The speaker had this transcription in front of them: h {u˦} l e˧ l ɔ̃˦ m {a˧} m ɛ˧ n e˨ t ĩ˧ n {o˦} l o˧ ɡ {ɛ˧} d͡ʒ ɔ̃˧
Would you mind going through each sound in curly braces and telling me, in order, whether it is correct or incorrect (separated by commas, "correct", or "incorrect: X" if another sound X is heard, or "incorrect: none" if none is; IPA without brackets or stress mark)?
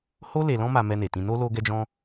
incorrect: o˦, correct, correct, correct